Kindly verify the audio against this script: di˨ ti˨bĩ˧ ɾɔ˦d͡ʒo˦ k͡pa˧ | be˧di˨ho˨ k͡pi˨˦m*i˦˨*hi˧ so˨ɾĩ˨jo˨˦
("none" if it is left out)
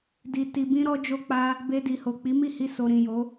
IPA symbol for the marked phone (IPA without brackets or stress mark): i˦˨